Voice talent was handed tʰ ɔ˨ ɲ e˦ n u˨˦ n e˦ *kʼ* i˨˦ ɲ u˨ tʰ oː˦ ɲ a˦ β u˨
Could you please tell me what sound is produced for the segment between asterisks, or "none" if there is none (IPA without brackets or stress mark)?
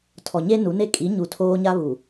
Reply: kʼ